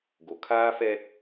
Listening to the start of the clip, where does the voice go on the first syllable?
low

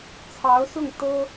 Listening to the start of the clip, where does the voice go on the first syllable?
rising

